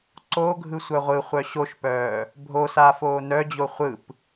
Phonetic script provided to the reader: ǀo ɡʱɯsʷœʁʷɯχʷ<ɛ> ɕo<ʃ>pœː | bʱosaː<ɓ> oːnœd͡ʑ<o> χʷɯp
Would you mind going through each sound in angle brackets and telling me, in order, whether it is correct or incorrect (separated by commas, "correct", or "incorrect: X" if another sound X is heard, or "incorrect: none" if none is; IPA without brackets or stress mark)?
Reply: incorrect: œ, correct, incorrect: f, correct